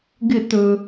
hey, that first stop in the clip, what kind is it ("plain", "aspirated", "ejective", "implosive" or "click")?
plain